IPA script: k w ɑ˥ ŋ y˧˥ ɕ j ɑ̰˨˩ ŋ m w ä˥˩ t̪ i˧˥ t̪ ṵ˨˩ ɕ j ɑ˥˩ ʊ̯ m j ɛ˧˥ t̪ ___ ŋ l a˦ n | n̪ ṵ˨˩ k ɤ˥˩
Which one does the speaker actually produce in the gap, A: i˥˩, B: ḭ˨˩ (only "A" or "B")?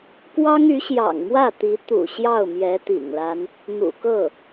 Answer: B